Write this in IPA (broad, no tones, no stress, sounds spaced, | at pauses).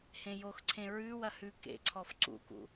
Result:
h ẽ j o x ǀʰ ẽ ɹ ʉ w ɐ h ʉ k ḛ ǀʰ ɔ f ǀ ṵ k ṵ